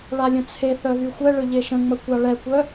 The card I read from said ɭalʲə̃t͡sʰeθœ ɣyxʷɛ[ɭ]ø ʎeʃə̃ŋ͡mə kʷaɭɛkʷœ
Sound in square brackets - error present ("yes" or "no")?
no